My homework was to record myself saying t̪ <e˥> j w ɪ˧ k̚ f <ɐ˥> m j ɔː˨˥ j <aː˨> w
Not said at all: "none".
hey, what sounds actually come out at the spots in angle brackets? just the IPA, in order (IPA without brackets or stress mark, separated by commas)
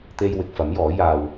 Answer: e˧, ɐ˨˥, aː˧